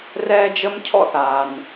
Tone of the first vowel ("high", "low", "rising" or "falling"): high